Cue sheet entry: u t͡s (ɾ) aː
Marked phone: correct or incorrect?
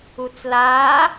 incorrect: l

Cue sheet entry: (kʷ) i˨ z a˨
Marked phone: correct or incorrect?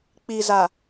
incorrect: k͡p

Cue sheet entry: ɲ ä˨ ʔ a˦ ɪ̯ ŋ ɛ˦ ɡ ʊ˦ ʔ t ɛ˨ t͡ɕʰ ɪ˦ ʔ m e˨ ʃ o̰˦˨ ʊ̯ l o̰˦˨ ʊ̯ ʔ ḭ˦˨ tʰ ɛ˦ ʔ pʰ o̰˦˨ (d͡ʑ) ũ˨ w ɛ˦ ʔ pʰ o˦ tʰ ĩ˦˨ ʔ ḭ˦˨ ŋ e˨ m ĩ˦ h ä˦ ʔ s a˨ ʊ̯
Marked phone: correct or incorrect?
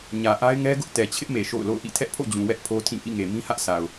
correct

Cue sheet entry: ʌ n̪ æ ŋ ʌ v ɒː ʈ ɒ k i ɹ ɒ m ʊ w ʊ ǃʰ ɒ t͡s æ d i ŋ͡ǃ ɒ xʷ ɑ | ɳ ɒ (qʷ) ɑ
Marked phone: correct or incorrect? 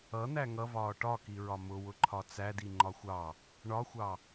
incorrect: xʷ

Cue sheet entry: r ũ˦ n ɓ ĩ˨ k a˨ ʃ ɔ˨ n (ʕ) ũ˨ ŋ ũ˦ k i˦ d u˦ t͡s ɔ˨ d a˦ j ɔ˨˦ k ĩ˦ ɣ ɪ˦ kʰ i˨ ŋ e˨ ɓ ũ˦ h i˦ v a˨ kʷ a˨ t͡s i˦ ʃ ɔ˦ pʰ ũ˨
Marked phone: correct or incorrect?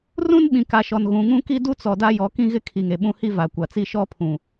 incorrect: ɣ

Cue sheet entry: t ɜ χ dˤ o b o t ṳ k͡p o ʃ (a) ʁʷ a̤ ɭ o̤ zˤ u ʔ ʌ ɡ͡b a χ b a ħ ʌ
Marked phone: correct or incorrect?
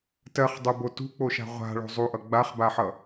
incorrect: a̤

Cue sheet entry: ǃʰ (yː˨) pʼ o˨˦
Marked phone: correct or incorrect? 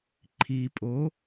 incorrect: iː˨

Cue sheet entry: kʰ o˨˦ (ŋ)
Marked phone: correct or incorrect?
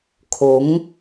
correct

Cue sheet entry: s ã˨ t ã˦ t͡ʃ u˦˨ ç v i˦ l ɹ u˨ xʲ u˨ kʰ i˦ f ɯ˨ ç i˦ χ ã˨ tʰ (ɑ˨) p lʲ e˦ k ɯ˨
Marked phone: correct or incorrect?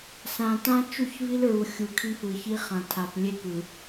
incorrect: a˨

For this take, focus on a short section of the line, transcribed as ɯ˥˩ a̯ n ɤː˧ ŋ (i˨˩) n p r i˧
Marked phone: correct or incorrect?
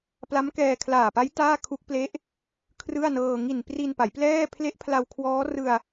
correct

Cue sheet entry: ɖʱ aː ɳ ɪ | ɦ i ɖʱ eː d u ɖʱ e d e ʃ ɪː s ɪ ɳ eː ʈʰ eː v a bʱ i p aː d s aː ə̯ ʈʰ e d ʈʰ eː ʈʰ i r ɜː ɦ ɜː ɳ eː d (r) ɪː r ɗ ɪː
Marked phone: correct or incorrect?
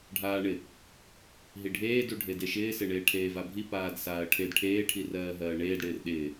incorrect: ɽ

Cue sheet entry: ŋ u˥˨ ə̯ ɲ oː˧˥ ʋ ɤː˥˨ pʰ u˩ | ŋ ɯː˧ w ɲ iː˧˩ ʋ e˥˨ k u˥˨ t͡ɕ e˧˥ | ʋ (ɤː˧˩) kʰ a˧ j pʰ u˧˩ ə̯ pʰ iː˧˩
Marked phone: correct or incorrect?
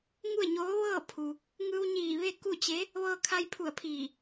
incorrect: ɤː˧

